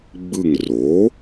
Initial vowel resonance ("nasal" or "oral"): oral